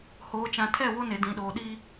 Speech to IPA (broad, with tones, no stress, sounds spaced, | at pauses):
h oː˨ t͡ʃ ã˨ tʰ ɛ˦˨ w o˦ n e˨ d ĩ˨ ɗ oː˨ ɗ i˦